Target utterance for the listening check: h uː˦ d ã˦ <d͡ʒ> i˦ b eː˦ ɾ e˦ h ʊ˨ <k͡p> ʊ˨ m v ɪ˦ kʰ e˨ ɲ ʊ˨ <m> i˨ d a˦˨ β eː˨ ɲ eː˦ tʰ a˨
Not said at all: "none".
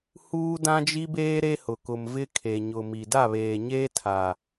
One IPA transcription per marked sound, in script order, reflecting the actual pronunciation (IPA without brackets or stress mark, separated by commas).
d͡ʒ, k, m